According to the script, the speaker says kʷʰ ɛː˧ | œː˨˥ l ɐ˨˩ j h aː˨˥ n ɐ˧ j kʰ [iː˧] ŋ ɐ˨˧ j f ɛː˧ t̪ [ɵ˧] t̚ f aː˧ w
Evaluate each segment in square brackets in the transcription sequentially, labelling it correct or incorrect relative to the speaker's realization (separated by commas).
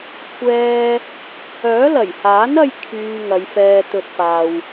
incorrect, correct